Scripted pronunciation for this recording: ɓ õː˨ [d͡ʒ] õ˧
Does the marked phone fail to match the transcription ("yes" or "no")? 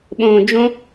no